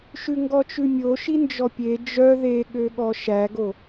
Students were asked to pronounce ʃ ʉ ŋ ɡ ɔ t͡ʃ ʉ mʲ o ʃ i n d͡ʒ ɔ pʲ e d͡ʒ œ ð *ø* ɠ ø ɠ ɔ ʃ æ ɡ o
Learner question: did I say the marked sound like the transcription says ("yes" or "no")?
no